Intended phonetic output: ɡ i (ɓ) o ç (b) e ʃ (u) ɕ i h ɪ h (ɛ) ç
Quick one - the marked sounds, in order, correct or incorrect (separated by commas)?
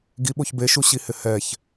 correct, correct, correct, correct